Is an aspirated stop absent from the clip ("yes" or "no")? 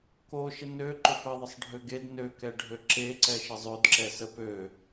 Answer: yes